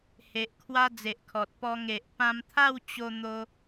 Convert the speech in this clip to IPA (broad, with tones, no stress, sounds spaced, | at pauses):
h e˨ ʔ kʰ w a˦ d͡z e˨ ʔ kʰ ɔ˨ t̚ p ɔ˧ ŋ e˨ ʔ p ã˧ m t̪ʰ a˥˧ w t͡ɕ o˦ n̪ o˦